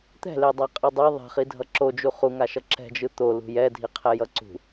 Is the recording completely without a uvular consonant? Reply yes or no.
no